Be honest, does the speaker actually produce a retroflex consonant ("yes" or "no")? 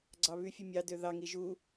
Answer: no